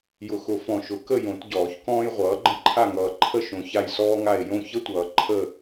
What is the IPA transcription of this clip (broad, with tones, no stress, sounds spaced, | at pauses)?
j ʊ˨ x ʊ˨˩˦ f ɔ̃˨ ʃ ʊ˨˩˦ k ə˦˨ j õ˨˩˦ t ɟ ɔː˨˩˦ ç k ɔ̃ː˦ j ʁʷ ʌː˨˦ ɡ͡ǃ ə̃˦ ǃʰ a˦˨ ŋ ʌː˨ ǃʰ ə˦˨ ʃ õ˨ ç a˦˨ j s ɔː˦ ŋ a˦˨ e̯ j õ˦˨ ç ə˦ tʷ ʌː˨ ǃʰ ə˦˨